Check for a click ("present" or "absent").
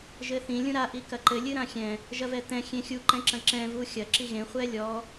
present